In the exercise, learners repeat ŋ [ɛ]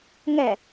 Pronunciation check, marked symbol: correct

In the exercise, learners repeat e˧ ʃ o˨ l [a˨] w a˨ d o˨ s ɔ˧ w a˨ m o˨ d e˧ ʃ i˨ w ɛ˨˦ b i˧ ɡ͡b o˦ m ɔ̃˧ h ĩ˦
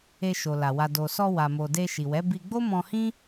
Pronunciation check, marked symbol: correct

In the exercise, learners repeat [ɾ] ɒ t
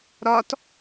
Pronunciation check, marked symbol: correct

